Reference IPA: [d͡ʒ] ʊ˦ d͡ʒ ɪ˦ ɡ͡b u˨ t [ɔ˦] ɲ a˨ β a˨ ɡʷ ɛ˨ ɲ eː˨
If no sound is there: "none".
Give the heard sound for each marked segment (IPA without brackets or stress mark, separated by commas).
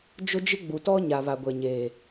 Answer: d͡ʒ, ɔ˦